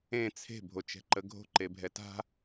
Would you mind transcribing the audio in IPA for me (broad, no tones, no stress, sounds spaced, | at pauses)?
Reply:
ẽ t͡sʰ e̤ bʱ o t͡ʃ ɛ̤ ǃ ə ɡʱ o̤ ǃ e bʱ ɛ t a̤